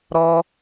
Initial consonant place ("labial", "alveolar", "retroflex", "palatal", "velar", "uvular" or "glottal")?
alveolar